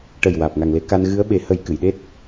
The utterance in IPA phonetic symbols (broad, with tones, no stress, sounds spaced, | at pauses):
ʈ ə˨˩ j w aː˨˩ p̚ ŋ a˨˩ ŋ l e˧˥ k a˧ n ɣ ɨ˧˥ ə̯ ɓ e˨˩˦ h ə˨˩˦ j k ɨ˨˩˨ j ɗ e˦˥ t̚